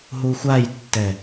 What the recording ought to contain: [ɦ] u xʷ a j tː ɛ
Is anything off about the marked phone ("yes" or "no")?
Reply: no